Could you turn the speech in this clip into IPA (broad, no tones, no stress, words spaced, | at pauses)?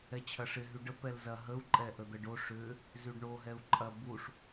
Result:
ɛt͡ɕʰɐʂɪ ɦyɖə pɛlzɐ ɦəu̯ ǃʼɛʔəd̪əɖo ʂʏ | zyɖɳo ɦɛu̯ǃʼɐ buʂ